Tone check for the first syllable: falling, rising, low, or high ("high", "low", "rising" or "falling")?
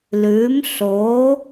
rising